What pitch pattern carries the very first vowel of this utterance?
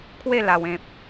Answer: falling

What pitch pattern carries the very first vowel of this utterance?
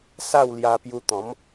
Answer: falling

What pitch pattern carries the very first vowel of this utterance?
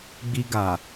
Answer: high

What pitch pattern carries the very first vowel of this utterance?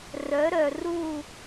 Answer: rising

